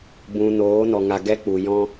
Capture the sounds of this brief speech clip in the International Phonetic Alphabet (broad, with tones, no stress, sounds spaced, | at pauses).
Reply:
b ũ˨ n oː˨˦ n ɔ˨ ŋ a˨ ɡ ɛ˦ k͡p u˨ j ɔ̃˧